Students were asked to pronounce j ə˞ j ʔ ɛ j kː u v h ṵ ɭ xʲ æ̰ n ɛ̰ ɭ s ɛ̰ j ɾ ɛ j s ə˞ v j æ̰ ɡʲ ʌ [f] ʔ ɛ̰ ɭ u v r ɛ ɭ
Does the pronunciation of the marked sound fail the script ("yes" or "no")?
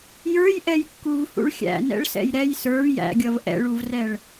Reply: yes